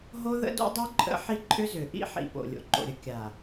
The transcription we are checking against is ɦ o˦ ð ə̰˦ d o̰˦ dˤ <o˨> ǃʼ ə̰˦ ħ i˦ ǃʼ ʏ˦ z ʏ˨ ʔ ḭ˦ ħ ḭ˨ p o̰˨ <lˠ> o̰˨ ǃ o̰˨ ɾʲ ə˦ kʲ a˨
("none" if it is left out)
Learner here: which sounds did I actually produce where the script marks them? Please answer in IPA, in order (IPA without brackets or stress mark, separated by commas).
o˦, lʲ